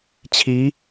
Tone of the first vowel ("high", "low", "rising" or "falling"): rising